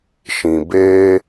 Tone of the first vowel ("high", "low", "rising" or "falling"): low